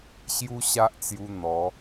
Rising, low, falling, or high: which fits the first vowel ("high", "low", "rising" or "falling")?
high